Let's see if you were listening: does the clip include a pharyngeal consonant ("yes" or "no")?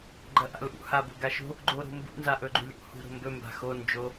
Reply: no